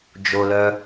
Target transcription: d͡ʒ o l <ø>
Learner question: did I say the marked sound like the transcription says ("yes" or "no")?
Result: no